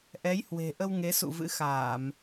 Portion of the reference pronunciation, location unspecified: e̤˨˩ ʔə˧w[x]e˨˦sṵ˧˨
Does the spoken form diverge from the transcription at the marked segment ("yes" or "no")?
yes